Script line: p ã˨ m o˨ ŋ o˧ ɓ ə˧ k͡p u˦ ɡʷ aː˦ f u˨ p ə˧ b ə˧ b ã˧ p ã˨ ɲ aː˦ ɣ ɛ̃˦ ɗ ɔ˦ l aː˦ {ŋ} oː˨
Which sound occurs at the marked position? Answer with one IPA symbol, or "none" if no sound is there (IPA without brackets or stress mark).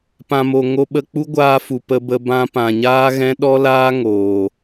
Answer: ŋ